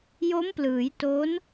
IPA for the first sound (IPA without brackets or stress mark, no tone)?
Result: j